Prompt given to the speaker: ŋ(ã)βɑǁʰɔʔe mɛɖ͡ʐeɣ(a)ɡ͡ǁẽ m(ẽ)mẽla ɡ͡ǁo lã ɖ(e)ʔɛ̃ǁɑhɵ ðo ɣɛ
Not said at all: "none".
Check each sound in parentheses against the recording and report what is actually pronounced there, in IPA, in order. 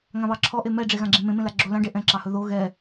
ã, ã, ẽ, e

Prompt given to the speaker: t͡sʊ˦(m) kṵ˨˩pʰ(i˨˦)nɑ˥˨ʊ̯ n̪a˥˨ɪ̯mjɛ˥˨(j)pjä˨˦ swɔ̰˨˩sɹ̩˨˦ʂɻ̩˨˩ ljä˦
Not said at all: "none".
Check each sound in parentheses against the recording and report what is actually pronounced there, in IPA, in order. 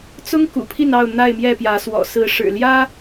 ŋ, i˥˨, none

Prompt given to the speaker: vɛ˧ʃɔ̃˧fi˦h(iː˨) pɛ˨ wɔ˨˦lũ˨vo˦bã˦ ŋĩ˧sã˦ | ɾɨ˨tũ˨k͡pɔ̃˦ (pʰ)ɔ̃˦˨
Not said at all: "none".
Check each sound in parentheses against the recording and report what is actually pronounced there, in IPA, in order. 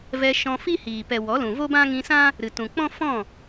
iː˨, f

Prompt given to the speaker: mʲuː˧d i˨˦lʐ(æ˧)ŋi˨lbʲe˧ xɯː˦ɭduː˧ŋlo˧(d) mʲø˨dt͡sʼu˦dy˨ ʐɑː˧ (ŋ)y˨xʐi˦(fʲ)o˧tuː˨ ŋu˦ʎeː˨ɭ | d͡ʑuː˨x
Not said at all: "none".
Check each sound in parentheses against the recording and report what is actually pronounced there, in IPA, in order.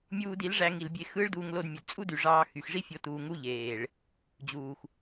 æ˧, d, x, fʲ

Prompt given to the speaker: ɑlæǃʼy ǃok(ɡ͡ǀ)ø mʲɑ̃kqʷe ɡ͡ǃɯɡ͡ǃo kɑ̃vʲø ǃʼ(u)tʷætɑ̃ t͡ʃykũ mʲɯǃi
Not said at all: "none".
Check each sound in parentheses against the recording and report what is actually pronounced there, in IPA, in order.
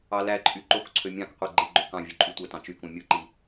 ǀʰ, y

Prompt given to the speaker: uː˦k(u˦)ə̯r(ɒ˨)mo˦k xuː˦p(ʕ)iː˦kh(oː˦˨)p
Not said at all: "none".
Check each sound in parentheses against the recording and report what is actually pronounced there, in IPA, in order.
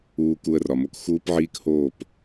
u˦, ɒ˨, ʕ, oː˦˨

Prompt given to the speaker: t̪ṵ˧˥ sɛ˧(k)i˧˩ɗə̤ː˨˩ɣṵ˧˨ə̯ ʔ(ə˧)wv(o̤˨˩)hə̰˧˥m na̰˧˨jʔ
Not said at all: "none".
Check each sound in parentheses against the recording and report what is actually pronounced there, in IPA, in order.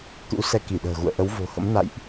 k, ə˨˦, o̤˨˩

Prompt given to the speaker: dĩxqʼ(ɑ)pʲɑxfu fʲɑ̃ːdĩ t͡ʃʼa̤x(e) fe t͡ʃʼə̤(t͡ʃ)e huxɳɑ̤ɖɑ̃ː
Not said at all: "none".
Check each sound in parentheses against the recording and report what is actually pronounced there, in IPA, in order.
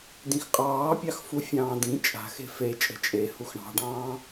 ɑː, e̤, t͡ʃʼ

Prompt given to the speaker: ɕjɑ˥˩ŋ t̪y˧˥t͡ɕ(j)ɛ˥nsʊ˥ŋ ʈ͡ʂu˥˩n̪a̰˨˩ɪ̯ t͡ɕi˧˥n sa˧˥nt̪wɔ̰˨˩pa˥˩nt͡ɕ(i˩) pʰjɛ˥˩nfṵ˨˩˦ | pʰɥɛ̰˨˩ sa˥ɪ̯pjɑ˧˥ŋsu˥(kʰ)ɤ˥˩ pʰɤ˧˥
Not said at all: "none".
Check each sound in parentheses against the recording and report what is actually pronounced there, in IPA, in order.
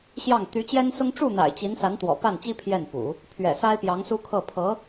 j, i˥, kʰ

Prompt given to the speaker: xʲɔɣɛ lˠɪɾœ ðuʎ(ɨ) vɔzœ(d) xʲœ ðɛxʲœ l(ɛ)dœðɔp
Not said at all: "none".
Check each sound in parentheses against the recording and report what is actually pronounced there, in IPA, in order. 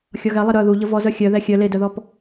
ə, none, e

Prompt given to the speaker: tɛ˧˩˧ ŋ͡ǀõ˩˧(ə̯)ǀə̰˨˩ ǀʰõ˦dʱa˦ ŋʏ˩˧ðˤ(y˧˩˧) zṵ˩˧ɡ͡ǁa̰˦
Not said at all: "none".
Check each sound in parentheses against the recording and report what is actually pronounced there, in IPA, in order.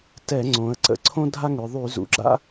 ə̯, y˧˩˧

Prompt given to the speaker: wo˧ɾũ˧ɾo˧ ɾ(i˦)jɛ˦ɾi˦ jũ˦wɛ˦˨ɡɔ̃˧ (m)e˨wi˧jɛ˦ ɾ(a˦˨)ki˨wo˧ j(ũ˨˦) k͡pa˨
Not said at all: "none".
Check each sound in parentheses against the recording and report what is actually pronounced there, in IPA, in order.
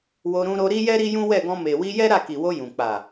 i˦, m, a˦˨, ũ˨

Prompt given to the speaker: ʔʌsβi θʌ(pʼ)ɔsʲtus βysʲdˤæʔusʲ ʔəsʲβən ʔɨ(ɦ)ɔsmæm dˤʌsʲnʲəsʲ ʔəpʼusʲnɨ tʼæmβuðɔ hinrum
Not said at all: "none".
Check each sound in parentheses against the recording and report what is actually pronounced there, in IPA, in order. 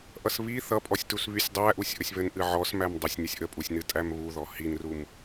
pʼ, ʕ

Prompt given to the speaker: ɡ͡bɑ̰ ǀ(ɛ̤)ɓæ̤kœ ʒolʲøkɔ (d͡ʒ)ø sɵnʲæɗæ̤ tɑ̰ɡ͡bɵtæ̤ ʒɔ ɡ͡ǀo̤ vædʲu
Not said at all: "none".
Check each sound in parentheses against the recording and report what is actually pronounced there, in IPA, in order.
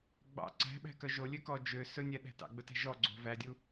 æ̤, d͡ʒ

